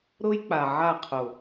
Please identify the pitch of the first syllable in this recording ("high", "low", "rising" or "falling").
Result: high